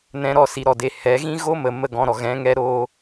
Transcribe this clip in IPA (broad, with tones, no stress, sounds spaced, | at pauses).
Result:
n ɛ̃˧ ɾ ɔ˧ s i˨ ɾ ɔ˨ d e˨ h ɛ˨˦ ɣ ĩ˦ ɣ o˦ m ə˨ m ə˦˨ ɡ ɔ̃˧ ɾ ɔ˨ ɣ ɛ̃˨˦ ŋ ɛ˦ ɾ oː˦